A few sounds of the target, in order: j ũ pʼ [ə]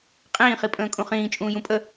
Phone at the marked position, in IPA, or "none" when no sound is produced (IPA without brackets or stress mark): ə